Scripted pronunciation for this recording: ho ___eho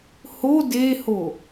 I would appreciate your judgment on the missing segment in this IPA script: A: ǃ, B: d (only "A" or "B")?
B